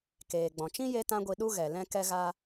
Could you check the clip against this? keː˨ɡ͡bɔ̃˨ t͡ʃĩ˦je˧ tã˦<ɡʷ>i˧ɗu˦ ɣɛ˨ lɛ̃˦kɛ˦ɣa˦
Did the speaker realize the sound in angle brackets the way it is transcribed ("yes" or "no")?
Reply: yes